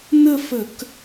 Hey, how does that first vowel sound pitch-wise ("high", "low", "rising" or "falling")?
falling